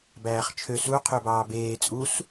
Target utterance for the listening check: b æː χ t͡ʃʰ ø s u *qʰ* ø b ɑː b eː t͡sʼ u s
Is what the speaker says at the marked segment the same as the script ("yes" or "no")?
yes